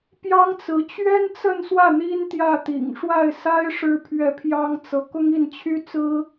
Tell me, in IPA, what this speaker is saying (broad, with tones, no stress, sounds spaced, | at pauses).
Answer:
p j ɑ˥ ŋ t͡s ɹ̩˧˥ t͡ɕ ɥ ɛ˥ n t͡s ə˥˧ n s w ä˥˩ n̪ i˥ n t̪ j ä˥˩ t̪ ḭ˨˩ ŋ ʂ w a˥˩ ɪ̯ s a˥ ɪ̯ ʂ ɻ̩˥ pʰ ɥ ɛ˥˩ pʰ j ɑ˥ ŋ t͡s ɤ˧˥ k ʊ˥ ŋ i˥˩ n t͡ɕʰ y˥ t͡s ɹ̩˥